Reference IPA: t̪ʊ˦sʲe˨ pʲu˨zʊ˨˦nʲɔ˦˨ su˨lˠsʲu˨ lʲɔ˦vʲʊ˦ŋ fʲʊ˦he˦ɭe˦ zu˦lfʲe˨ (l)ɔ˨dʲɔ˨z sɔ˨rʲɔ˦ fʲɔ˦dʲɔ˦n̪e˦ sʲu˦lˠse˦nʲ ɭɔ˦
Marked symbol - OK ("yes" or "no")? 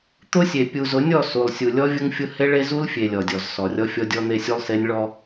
no